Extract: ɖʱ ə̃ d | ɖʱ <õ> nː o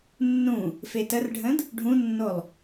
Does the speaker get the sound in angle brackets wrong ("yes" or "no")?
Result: yes